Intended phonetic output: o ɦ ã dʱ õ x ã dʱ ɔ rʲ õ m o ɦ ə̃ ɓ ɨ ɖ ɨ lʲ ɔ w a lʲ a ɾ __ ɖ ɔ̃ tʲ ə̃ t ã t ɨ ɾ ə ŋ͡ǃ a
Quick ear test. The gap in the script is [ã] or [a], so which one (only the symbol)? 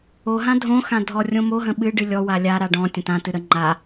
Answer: a